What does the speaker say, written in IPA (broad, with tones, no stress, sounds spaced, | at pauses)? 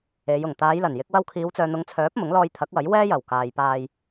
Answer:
e˨˧ j ʊ˨˩ ŋ t̪ aː˨˧ j l ɐ˨˩ n j ɪ˨˥ k̚ w ɐ˧ w kʰ iː˨˧ w t͡s œː˨ n̪ ʊ˨˧ ŋ t͡sʰ œː˨˥ p̚ m ʊ˨˥ ŋ l ɔː˧ j t̪ʰ ɐ˨˥ k̚ w ɐ˨˥ j w ɛː˥ j ɐ˨˩ w k aː˨ j p aː˧ j